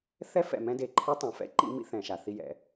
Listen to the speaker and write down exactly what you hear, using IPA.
θ ɛ˦ f ɛ̰˨ m ɛ̃˦ d e˨ ǃʰ i˦ tˤ ɛ̃˨ f ɛ̰˦ ǃ ḭ˦ m ḭ˦ θ ɛ̃˨ ʃ a˨ θ i˦ j ɛ̰˨˦

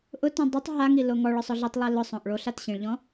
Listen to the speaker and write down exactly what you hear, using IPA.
ʔ ʊ t ũ dˤ ʊ tˤ ɦ a ŋ i l o ŋ ɔ ɭ ɔ sˤ ɔ ɮ i tˤ lˠ e l ʊ sˤ õ ʔ ɭ o ɬ a t ɕ ĩ ɭ ʎ ɔ̃

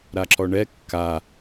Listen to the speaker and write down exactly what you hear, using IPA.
ɾ a ǁ ɔ ɳ ɛ kː a

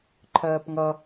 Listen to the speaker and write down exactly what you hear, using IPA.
ǃʰ ɜː p ŋ ʌ

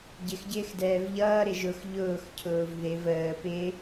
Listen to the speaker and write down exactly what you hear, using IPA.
ɟ ɪ x ɟ ɪː x d ɛː v ʎ ʌː ɾ ɪ ʒ ʊ x ʎ ʊː x cʰ ʊː v ð ɪ v əː p ɪ

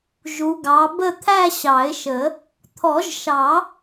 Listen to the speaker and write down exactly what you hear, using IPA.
ʒ u˨˦ ɡ ɑ˨˦ b ə˥˧ t̪ʰ æ˥˧ ɕ ɑ˨˩˦ ɪ̯ ʃ ə˨˩˦ | t̪ʰ ɔ˨˩˦ ʒ ʃ ɑ˨˩˦

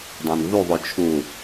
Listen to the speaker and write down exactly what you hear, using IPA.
dˤ æ̃ n v u ðˤ o t͡ʃʰ u

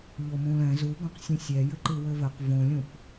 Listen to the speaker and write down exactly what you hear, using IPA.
ʎ o m ũ l ɛ̃ z u ɡ õ q sʲ ũ sʲ ɛ j ɘ ǃ ɨ w ɘ v ɘ q v õ lʲ ũ p

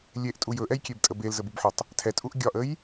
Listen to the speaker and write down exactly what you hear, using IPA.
lʲ e ʔ tʼ u j ɵ ʔ ɛ j kʲ e b tʼ ə b e l z ə b u b ħ ɔ tˤ | tʰ ɛ tʼ u ʔ ɡʲ ɒ ʔ ə j

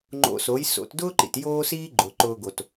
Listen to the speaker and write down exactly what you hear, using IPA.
ŋ͡ǃ o̰˧ s o˩˥ j s o̰˧ t d ʊː˥ ǃ ḭ˩ t j oː˥ s iː˥ ɡ͡ǃ ʊː˩ ǃ ʊː˧ ɡ o˩ t

